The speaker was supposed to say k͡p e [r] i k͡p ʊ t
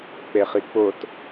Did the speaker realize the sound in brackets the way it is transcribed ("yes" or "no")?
no